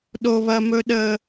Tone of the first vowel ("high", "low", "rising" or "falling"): high